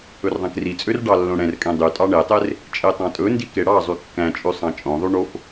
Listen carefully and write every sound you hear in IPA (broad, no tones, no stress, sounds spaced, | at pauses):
ɵ r ðˤ ɛ̃ k r i t͡sʼ ø r ɖ ɑ lː õ ɽ ɛ̃ r kʼ ɛ̃ dˤ y tʼ ɑ ɳ e tˤ e r | t͡ʃʼ e tˤ ɑ̃ tʼ ɵ n d i k e ɽ ɑ zˤ y kː æ̃ t͡ʃʼ ʉ sˤ ɑ̃ t͡ʃʼ õ ðˤ y ɳ o f